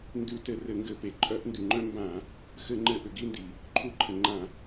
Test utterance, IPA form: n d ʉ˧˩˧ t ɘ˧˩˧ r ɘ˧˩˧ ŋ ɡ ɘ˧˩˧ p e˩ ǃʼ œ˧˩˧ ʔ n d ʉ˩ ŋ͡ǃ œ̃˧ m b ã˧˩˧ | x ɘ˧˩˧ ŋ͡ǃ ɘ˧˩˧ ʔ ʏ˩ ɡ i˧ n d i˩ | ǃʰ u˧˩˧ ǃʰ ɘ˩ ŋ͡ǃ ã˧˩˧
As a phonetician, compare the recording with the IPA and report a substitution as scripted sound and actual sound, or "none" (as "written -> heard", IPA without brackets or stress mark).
none